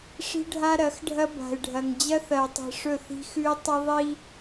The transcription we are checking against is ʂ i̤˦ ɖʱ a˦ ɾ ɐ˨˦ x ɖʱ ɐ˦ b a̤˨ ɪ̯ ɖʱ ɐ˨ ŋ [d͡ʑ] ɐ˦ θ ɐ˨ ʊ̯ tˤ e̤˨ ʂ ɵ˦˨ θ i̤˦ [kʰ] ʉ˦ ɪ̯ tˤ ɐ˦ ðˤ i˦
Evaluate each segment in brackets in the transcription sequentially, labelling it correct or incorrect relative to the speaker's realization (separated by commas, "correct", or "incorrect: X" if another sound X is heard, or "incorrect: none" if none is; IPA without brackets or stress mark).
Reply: correct, incorrect: x